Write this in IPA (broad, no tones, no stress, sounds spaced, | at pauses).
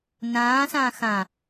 n ãː s ãː x ã